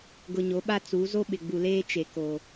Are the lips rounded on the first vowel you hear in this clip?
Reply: yes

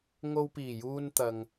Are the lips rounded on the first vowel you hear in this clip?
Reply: yes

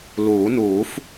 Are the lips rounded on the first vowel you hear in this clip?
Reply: yes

